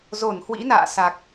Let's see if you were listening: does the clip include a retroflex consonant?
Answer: no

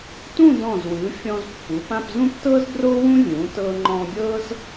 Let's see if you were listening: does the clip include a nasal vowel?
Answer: yes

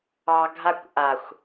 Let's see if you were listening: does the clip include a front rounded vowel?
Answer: no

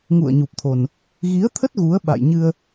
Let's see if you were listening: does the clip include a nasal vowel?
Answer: no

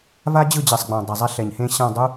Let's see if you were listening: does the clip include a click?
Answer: no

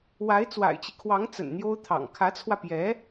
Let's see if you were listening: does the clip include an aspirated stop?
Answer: yes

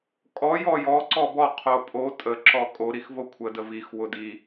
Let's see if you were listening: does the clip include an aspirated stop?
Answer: yes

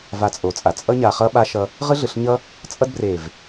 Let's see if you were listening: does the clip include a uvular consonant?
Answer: yes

